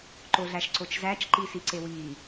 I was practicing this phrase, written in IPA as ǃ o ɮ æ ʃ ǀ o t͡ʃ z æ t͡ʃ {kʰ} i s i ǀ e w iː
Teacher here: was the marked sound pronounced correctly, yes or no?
no